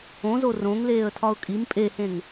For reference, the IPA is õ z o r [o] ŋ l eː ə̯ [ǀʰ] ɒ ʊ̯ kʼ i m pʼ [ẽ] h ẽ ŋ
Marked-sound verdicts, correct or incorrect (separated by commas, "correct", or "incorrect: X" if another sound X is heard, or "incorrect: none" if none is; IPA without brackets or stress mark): incorrect: õ, incorrect: tʰ, incorrect: e